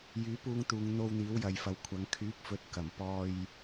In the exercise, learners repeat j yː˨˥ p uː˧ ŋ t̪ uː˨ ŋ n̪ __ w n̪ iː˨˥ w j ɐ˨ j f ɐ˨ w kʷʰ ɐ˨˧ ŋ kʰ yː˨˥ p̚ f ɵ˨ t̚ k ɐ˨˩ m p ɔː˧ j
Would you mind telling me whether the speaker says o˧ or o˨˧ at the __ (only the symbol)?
o˧